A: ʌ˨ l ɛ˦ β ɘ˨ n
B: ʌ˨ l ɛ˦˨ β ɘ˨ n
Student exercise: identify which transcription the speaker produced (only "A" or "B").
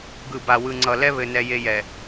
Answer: A